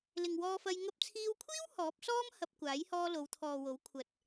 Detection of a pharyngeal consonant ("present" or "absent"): absent